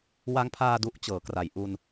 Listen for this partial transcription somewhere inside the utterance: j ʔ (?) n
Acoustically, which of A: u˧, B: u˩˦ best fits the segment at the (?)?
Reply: A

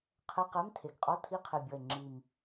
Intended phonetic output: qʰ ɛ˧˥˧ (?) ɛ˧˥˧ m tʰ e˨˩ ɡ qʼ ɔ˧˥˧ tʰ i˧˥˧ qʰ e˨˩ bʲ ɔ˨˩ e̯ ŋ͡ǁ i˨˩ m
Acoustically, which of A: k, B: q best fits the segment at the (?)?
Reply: B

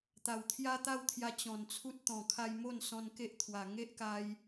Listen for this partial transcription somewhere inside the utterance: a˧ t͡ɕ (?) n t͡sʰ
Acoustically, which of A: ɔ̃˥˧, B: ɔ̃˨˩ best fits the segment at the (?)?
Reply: B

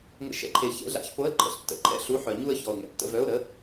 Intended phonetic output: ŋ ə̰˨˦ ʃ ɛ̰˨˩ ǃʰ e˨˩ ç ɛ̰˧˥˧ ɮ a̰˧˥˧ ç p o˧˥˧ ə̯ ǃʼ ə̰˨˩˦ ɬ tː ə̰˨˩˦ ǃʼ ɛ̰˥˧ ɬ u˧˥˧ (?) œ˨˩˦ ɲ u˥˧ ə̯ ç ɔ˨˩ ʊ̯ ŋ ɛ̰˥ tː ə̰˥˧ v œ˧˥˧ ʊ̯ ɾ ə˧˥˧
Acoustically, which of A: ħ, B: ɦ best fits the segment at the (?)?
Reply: A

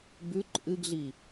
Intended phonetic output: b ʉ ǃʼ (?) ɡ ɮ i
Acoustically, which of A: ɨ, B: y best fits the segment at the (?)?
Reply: A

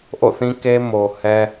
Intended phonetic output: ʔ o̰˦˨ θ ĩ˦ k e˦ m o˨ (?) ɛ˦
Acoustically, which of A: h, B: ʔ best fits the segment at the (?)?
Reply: A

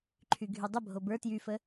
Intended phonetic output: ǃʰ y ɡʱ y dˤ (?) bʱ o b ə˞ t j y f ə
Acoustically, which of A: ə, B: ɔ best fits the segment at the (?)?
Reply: A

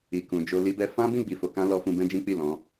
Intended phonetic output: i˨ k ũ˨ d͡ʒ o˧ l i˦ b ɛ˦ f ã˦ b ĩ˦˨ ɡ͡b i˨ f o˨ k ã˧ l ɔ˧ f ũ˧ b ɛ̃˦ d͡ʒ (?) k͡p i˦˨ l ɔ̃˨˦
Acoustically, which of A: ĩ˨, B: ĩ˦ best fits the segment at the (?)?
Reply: B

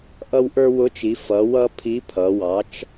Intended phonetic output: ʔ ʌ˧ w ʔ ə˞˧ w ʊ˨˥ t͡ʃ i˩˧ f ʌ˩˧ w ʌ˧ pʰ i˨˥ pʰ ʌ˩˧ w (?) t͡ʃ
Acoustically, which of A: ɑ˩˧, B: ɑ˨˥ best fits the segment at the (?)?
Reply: B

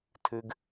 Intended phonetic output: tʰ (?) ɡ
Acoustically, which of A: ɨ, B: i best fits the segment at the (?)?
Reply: A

